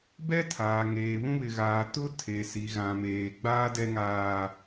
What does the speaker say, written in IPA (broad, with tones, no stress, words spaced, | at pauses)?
bɛ˦tʰaː˨ ŋeː˨βũ˦βɪ˨ɣaː˨ tʊ˦ tʰe˨si˨ ɣã˨meː˨ ɡ͡baː˦dɛ˦ŋaː˦